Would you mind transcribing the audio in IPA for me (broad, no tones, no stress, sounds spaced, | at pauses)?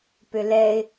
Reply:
p ʏ l ɛ ɪ̯